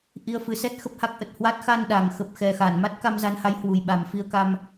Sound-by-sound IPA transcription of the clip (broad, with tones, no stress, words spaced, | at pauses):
ʔi˧ə̯fɨ˨˦sɛ˦˥t̚ xə˦˥p̚ha˦˥k̚ʔə˨˩t̚hwa˦˥t̚ xa˧nɗa˨˩ŋ xə˨˩p̚xɛ˨˩ xa˧˩n ma˦˥t̚ka˧mza˨˦nha˨˦j hwu˨˩jɓa˨˩mfi˧ə̯ ka˧m